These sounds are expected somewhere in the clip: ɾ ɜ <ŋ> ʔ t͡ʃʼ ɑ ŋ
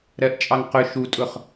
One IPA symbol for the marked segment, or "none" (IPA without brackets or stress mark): none